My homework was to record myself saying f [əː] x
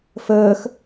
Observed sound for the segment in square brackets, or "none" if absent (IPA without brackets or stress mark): əː